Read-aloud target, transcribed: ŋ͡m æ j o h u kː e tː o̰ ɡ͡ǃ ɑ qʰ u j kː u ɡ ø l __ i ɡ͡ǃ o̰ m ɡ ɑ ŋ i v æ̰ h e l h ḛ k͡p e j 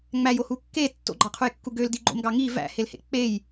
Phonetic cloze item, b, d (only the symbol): d